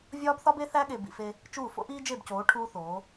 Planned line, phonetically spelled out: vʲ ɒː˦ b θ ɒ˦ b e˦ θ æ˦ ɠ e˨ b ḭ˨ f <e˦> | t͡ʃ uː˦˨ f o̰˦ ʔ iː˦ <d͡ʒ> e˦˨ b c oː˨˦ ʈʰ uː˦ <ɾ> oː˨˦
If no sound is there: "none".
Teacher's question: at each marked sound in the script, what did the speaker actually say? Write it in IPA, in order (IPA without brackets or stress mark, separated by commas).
e˦, d͡ʒ, θ